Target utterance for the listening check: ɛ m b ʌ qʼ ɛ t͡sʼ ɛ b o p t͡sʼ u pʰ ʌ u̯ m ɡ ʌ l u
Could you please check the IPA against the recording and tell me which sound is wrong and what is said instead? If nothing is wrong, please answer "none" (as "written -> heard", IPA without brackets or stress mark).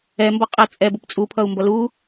ɡ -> b